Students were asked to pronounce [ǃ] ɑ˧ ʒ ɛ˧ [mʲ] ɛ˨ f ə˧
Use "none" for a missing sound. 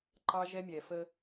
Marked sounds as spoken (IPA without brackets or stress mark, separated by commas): ǃ, mʲ